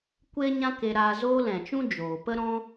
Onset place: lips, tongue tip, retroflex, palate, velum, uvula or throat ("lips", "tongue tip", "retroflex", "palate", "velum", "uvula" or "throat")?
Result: velum